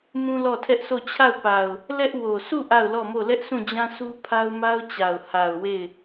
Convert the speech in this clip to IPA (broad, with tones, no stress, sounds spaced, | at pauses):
m ũ˦ l ɔ˦˨ tʰ ɛ˦ ʔ s o˦˨ t͡ɕʰ a˦˨ ʊ̯ p a˨ ʊ̯ | l ɛ˦ ʔ w o˨ s u˦˨ ʔ a˦˨ ʊ̯ l ɔ˦˨ m o˦˨ l ɛ˦ ʔ sʰ ũ˦˨ d͡ʑ ã˦ sʰ u˦ pʰ a˦ ʊ̯ m a˦ ʊ̯ t͡ɕ a˨ ʊ̯ h a˨ ʊ̯ w e˦˨ ɪ̯